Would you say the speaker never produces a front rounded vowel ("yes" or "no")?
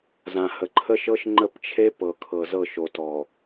yes